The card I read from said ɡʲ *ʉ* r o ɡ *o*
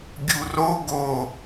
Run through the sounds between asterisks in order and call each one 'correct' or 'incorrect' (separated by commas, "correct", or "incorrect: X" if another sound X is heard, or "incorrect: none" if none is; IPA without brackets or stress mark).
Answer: incorrect: u, correct